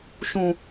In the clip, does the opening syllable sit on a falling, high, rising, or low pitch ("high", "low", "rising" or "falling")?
low